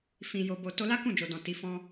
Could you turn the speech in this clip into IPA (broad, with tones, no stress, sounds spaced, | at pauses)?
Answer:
f ĩ˨ j o˨ b o˨ t o˧ l a˦ k ũ˦˨ d͡ʒ o˨ d ɔ̃˨ t i˨˦ f ɔ̃˦